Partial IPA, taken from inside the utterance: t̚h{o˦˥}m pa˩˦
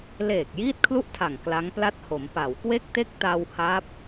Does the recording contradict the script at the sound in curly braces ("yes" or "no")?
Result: yes